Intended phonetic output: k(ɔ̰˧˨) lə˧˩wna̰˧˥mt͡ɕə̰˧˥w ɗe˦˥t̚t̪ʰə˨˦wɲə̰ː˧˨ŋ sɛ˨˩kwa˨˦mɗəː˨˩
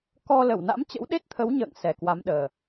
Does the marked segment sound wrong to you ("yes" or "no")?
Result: yes